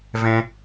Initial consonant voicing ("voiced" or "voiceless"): voiced